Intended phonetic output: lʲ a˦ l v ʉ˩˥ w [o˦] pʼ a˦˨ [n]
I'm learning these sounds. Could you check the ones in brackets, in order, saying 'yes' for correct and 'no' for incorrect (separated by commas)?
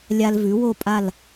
yes, no